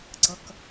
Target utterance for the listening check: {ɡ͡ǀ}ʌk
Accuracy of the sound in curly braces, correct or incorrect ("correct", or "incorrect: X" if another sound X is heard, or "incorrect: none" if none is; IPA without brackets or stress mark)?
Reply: correct